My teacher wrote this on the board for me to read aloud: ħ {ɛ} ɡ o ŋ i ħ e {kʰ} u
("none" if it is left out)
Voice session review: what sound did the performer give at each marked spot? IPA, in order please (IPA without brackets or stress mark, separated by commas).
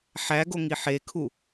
æ, kʰ